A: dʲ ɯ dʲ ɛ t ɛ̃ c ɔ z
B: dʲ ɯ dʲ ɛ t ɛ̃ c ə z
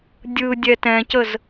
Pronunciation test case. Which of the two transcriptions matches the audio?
B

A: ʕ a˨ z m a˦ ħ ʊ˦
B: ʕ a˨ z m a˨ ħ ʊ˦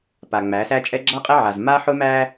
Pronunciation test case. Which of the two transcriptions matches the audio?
A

